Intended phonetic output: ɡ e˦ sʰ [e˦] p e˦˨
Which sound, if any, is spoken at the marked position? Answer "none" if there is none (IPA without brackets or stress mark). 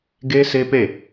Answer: e˦